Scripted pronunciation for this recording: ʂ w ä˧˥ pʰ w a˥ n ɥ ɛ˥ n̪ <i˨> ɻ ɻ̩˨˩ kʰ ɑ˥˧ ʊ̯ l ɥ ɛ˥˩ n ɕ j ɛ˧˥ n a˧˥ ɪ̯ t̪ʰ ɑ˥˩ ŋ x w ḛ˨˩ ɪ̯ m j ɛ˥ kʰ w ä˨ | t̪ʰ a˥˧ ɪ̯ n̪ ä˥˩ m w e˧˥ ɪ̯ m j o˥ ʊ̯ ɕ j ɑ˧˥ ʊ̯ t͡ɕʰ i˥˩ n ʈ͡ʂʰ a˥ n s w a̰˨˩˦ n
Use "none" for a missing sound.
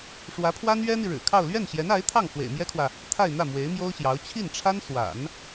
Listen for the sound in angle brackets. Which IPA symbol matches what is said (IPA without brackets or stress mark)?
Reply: i˨